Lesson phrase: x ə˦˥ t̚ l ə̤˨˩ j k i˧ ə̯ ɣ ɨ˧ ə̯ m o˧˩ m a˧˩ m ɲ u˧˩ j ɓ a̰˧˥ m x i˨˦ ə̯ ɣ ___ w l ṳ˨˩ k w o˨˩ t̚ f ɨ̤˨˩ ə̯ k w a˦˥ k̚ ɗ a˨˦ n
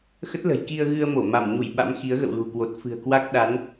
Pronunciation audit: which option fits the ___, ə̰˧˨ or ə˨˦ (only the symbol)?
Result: ə̰˧˨